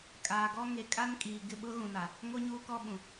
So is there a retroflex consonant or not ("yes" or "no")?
no